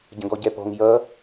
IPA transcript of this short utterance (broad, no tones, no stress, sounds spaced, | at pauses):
ɟ ə̃ ɡ ɔ ɟ ɛ p ɔ̤ ŋ j ʌ